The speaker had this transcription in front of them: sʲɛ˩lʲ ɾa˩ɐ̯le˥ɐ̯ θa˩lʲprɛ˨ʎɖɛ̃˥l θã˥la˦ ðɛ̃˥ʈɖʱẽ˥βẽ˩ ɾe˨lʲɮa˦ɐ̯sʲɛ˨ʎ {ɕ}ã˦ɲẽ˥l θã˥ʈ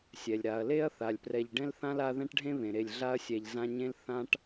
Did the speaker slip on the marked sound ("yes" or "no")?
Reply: yes